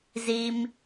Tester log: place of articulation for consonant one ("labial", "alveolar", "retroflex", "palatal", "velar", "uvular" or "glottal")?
alveolar